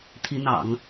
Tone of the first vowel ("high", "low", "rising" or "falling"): rising